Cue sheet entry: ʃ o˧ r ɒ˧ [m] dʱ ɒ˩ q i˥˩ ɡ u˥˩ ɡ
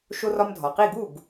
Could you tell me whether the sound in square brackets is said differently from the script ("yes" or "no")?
no